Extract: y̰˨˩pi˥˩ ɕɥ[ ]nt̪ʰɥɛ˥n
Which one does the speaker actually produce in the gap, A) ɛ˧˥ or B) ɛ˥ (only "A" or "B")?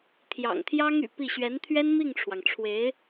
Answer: A